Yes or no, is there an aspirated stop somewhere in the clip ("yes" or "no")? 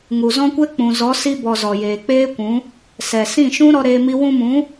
no